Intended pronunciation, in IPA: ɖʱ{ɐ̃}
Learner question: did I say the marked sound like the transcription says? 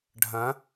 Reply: yes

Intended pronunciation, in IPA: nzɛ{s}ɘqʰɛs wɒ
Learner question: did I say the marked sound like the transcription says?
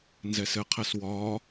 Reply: yes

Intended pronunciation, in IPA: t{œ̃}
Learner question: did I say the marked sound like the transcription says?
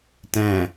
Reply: no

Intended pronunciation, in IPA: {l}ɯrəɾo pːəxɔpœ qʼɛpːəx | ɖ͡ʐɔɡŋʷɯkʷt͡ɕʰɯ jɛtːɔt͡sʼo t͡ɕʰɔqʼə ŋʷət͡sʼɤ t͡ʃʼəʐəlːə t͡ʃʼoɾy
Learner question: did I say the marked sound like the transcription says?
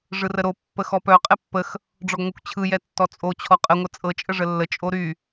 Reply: no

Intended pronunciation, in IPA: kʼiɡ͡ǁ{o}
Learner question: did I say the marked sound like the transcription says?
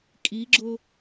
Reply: yes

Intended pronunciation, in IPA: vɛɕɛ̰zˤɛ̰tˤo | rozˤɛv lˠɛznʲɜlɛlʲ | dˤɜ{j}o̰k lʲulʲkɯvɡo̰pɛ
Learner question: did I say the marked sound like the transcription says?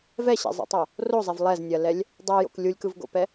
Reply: yes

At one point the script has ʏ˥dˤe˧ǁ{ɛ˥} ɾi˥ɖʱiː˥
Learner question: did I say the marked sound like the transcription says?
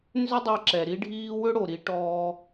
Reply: no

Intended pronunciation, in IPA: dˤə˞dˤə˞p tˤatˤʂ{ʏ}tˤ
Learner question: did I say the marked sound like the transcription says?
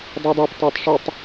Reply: no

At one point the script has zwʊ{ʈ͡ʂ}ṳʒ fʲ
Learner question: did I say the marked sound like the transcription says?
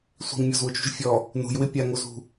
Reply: no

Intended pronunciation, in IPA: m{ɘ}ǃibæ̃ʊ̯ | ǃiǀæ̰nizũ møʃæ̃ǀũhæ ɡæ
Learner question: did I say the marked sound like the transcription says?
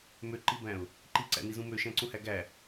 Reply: no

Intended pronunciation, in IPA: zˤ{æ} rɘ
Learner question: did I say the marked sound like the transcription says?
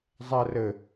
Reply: no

